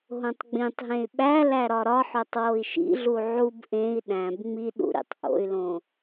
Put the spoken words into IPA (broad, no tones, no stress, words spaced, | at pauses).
ɦõtˤɡ͡bĩtˤɦẽy̯ ɓæ læɾɒɾɒħotˤ woi̯ʃḭɮu ʕub ʔẽi̯ ɗæ̃b ŋ͡mi ɗṵɾḭtˤ ʔo̰y̯lõ